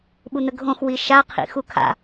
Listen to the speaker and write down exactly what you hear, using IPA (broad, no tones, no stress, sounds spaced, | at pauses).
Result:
ɓ u n̪ ə ɡʱ õ x w i ʃ a qʰ ḭ x u kʰ a̰